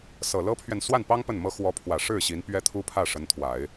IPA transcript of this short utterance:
s ɤ˨˩ l ɤ˥ pʰ ɥ ɛ˨ n s w a˥˩ n p ɑ˥ ŋ p ə˥˩ n m ɤ˥ x w ɔ˧˥ pʰ w ä˨˩ ʂ ɻ̩˥˩ ɕ i˧˥ n p ɥ ɛ˥ t̪ʰ u˥ pʰ ä˥˩ ʂ ə˧˥ n t̪ʰ w a˨˩˦ ɪ̯

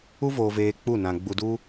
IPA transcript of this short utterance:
u˦ v oː˧ v eː˧ k͡p u˦˨ n ã˧ ɡ͡b u˧ d u˦

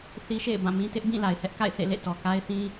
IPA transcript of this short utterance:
θ i˦ ʃ ḛ˦˨ ɪ̯ b ã˦˨ m ĩ˦ t ɪ˦ ʔ b ĩ˦˨ l a˨ ɪ̯ h ɛ˦ ʔ k a̰˦˨ ɪ̯ θ ḛ˦˨ l ḛ˦˨ t ɔ˨ k a˦ ɪ̯ θ ĩ˦

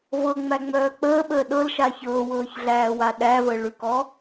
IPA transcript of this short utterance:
v ɤ ŋ͡m æ ŋ͡m œː k͡p əː ɓ əː ɗ ɤ l ʃ a ç ɤː w ɤː ç ɮ æː w a ɗ æ v ə ɭ ʉ k ɔ

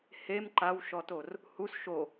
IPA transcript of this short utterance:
h e m ǃ a w ʃ ɔ t o r | h u s ʃ o

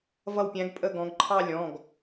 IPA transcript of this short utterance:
v ʌ˦˨ w pʲ æ̃˨˥ ɡ pʼ ə˦˨ ɡ ɔ̃˩˧ ɡ ǃʰ ɑ˦˨ lʲ ɔ̃˩˧˩ ɡ

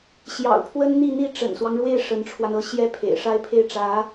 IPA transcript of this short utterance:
ɕ j ɑ̰˨˩ ʊ̯ pʰ w ə˥ n n̪ i˥˧ n̪ i˥˩ ʈ͡ʂ ə̰˨˩ n s w ɑ˦ ŋ ɻ w e˥˩ ɪ̯ ʂ ə˧˥ n ʈ͡ʂʰ w a˧ n ɤ˥˩ ɕ j ɛ˥ pʰ ḛ˨˩ ɪ̯ ʂ a˥˧ ɪ̯ pʰ e˥˩ ɪ̯ ʈ͡ʂ ä˧˥

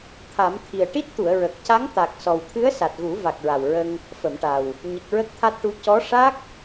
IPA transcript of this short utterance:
t̪ʰ a˨˩˦ m t̪ʰ i˨˩ ə̯ ʈ i˦˥ t̚ t̪ u˨˩˨ ə̯ ɹ ə˨˩ k̚ c a˧˥ ŋ t̪ a˨˩ k̚ s ɔ˨˩ w t̪ʰ ɨ˧˥ ə̯ s a˨˩ t̚ ɣ u˨˩˦ v a˨˩ k̚ ɹ a˨˩ w ɹ ə˧ ŋ | f ə˨˩˨ m ʈ a˨˩ w | ɲ ə˨˩ k̚ ɹ ə˦˥ k̚ t̪ʰ a˦˥ t̚ ʈ u˧˥ c ɔ˧˥ ʂ a˦˥ k̚

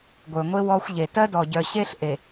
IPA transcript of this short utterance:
ɡʷ ə˞˨ ŋʷ e˦ w ɔ˦ xʷ ʎ e˨ t ɜ˦ d ɔ˨ ɟ œ˨ ɕ e˦ ɬ ʔ e˨

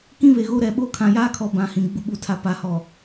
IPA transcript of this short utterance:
k ĩ˦ β e˨ ɣ o˦ ɾ ɛ˨ ɓ o˦ kʰ ã˨ j aː˦ kʰ ɔ˨ b ã˨˦ h ĩ˨ ɡ͡b u˨ ɓ u˨ tʰ a˨ p a˨ h ɔ˨

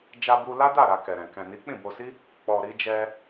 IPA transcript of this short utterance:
d͡ʒ a˧ b u˧ l a˦ d a˦˨ ɾ a˧ k ɛ˨ ɾ ɛ̃˨ k ɛ̃˨ n i˨˦ k͡p ĩ˦˨ b o˧ s i˦ | k͡p ɔ˨ ɾ i˧ d͡ʒ ɛ˧

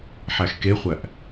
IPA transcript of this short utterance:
ħ æ x k e χʷ æ ʔ

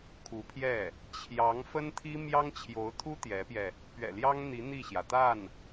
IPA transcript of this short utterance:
kʰ u˧˥ pʰ j ɛ˥˩ | t͡ɕʰ j ɑ˧˥ ŋ f ə˥ n t̪ʰ i˥ m j ɑ˥ ŋ t͡ɕʰ j o˧˥ ʊ̯ t̪ʰ u˥ t̪ j ɛ˧˥ p j ɛ˧ | p ɥ ɛ̰˨˩ l j ɑ˥ ŋ n̪ i˧˥ n̪ i˥˩ ɕ j ä˩ t̪ a˥˩ n

